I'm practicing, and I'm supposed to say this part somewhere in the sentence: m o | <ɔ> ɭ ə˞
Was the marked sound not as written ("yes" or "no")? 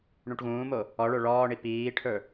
no